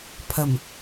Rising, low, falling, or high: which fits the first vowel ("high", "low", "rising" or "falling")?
low